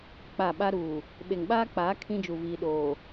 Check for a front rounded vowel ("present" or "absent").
absent